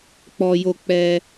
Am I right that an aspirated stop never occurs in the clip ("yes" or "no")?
yes